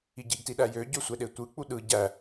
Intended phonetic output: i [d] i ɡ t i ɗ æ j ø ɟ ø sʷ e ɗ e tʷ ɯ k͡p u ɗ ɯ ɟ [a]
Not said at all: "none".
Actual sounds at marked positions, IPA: ɟ, æ

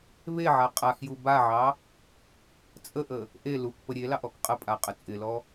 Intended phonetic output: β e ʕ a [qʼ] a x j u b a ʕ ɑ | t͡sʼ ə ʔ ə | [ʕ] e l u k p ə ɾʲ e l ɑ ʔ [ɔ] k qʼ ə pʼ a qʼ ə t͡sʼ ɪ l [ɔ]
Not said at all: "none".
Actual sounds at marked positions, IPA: qʼ, ʔ, ɔ, ɔ

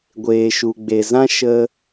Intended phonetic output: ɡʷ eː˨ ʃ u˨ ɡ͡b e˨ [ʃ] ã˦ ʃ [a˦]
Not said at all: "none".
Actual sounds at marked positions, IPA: z, ə˦

